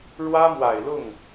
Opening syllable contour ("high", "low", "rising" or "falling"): high